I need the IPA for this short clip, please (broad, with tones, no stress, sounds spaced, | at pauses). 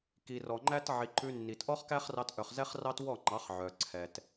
k i˨ r ɔ˨ ŋ͡ǃ æ˦ t ʕ i˨ ǃ ʉ˧ nː i˨ t ʔ ɔ˦ χ k æ˦ χ r ɑ˧ t ʔ œ˨ χ z ɛ˦ χ r ɑ˦ t w ɔ˦˨ ŋ͡ǃ ɑ˨˦ χ ʕ œ˨ ǀʰ ɛ˨ t